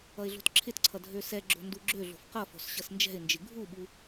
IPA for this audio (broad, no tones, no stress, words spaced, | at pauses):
ʌɪ̯ɮo̤tǁʰɪtǀʰʌ dʱøsɛɡ͡ǁo̤ nduɡ͡ǁøɮo̤f qʌfo̤s ɕʌsnd͡ʒɛ̤ɪ̯nd͡ʒɪ ɡʱuɓu